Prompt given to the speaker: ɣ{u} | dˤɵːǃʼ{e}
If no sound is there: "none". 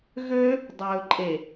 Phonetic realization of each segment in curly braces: ø, e

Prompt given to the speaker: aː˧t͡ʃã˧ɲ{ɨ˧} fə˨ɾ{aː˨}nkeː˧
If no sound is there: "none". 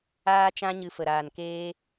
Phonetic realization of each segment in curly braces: ɨ˨, aː˨

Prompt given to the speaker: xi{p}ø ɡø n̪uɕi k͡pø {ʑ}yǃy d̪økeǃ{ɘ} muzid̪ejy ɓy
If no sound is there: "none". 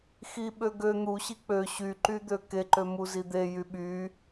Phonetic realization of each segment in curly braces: ɓ, ɕ, ø

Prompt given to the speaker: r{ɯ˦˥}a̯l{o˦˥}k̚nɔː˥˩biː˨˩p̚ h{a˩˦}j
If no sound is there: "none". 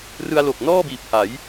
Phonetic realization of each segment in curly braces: ɯ˧, o˨˩, a˩˦

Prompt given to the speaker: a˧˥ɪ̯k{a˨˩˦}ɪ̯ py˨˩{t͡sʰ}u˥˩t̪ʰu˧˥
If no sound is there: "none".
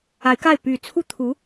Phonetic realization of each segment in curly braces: a˥˩, t͡sʰ

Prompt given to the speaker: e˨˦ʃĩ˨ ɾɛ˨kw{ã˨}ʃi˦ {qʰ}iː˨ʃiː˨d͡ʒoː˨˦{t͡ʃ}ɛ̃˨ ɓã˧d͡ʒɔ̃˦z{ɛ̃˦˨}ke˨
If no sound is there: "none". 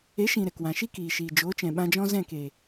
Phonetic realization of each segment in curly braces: ã˨, k, t͡ʃ, ɛ̃˦˨

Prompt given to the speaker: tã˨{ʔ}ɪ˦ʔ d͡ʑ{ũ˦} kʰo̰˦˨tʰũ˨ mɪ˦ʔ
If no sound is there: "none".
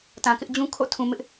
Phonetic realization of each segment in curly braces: k, ũ˦

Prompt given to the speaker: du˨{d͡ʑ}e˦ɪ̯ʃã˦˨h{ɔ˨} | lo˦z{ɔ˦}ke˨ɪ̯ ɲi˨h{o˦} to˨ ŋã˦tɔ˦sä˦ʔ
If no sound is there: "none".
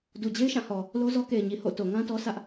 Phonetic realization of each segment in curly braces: d͡ʑ, ɔ˨, ɔ˦, o̰˦˨

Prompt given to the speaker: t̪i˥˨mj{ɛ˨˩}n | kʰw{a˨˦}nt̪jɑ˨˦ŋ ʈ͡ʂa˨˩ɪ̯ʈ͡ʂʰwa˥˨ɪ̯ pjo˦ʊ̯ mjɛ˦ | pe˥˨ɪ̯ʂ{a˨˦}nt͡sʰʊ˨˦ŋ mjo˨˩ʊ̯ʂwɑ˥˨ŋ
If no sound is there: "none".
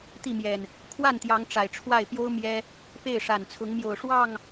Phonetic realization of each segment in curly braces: ɛ˨˩, a˥˨, a˨˩

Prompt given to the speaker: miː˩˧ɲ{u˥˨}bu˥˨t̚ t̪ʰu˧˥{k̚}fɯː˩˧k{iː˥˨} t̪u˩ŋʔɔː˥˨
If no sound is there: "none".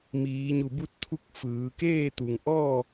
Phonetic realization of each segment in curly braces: u˧˩, k̚, eː˥˨

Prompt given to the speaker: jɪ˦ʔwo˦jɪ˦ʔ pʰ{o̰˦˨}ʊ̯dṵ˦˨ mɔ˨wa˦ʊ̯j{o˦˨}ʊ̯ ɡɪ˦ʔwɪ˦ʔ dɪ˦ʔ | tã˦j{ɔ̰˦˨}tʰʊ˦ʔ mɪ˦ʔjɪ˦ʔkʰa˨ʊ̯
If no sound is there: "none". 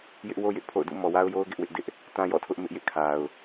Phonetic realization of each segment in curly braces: o̰˦˨, o˦, ɔ̰˦˨

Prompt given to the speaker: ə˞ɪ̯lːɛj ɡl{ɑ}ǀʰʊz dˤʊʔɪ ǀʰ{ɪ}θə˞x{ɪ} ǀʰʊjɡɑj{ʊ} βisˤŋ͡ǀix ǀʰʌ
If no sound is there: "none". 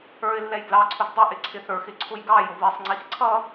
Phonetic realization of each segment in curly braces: ɑ, ɪ, ɪ, ʊ

